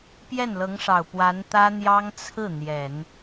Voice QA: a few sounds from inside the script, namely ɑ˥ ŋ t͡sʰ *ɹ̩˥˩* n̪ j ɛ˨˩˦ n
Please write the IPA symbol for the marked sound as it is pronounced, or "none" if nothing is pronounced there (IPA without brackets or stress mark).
ɹ̩˥˩